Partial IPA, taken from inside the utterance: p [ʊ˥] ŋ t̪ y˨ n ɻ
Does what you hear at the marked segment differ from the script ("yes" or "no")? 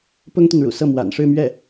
no